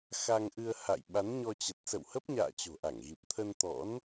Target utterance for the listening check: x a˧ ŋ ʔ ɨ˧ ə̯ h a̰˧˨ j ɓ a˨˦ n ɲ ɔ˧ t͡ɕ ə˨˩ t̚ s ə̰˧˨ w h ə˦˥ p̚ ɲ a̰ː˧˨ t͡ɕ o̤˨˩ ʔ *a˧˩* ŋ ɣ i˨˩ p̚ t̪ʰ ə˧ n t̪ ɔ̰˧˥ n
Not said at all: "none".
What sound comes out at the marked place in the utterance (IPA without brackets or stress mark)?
a˧˩